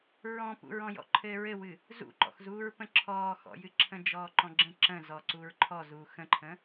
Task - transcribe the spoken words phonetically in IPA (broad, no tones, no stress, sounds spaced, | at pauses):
ɹ ɔ̃ p ṵ ɹ ɔ̃ j ɔ̰ ǃʰ ɘː ɹ ɘ w ɨ | z ṵ ǃ ɔ̰ x z uː ɹ p ə̃ ǁʰ ɔː x ɔ̰ j ɨ ǁʰ ə̃ d͡ʒ ɔː ǃ ɔ̃ ɡ͡ǁ ə̃ ǁ ə̃ z ɔ ǀ u ɹ ǃʰ ɔ z uː x ə̃ ǃʰ ə̃